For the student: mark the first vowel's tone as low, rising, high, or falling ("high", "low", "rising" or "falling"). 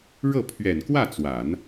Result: falling